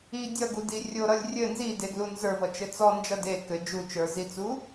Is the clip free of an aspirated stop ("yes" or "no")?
yes